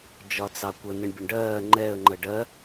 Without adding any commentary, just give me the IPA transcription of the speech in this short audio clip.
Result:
d͡ʒɒt͡sɑkʷə nɪɳbʲʊɳɖɜː ŋ͡ǃɛə̯ ŋ͡ǃəɖɜ

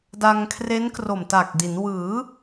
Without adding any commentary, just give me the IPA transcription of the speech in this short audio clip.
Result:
da˧ŋkʰre˦˥n kro˨˩mta˨˩k̚di˩˦n wɯː˩˦

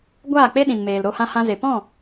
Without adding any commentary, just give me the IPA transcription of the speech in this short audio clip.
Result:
ɡʷaː˦˨k͡pe˦ ɗĩ˨nmeː˨lɾo˧ hã˧hã˧ze˨ pɔ̃˦˨

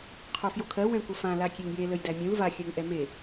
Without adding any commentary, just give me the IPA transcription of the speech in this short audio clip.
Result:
qʰofjokʰɜ wɛ̃kʷəfã lakʲeŋje ləjdæmʲũl va xʲɜŋʔɛme

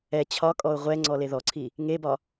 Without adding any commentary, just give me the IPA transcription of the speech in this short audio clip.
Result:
ɛ t͡ɕʰɒkʼɔʊ̯ ʁʷɛ ŋ͡ǀɔleðɔǀʰi | ŋebɒ

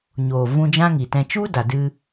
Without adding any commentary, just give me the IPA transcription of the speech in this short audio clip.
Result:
ɲoː˨ vũ˧d͡ʒã˦ŋi˨tɛ̃˧ t͡ʃu˦ da˨dɨ˧

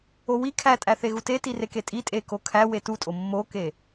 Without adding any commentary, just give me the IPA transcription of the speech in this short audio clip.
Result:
owi kʰætʼæθe ɣuteti reketʼitʼe kokʰæ wetutʼo mːoke

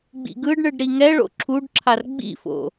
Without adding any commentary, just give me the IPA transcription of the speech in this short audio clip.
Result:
ɡ͡bḭɡɯɖɳɯɖ ɾiŋɛɭo̰ ǁʰuɖǁʰar ɡ͡bḭfo̰

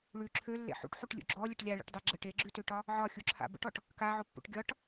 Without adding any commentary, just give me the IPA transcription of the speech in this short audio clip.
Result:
ɭʉ ǁʰølːḛ ħṵʈħuʈlʲṵ ɡ͡ǁɔlʲəʈ lʲaɭḛʈdˤe ɡ͡ǁəʈ eɡ͡ǁʉtøʈɒ | ʕɒxʲuǁʰa̰ bə̰ʈɔʈ | kaʕopːṵʈ ɡʲɒʈ

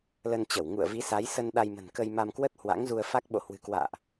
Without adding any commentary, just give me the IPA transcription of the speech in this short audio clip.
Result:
lə˧nt͡ɕə˧˩w ŋṵ˧˨ə̯vi˨˦sa˨˦j sə˧n ɗa˧jmə̤˨˩nkə˧j ma˧mkwə˦˥t̚ hwa̰˧˥ŋzu˧ə̯ fa˦˥k̚ ɓo̰˧˨ hwɨ̤˨˩kwa̰ː˧˨ʔ

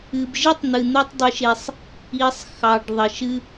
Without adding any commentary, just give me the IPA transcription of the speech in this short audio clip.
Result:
ɨ˨bʒɨ˦tˤ n̪ɨ˨n̪o˦tˤ dˤɨ˦ʃe˦sˤ | i˨sˤ xɑ˨ɖ ðˤə˨ʃɨ˦

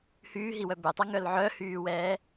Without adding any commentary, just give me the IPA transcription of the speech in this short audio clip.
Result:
hyːɦiwœ bøtˤaŋœl ʕœhyːwɛː

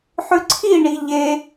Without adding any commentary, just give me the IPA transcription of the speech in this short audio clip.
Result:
ħʉǀʰi ɳiʎe

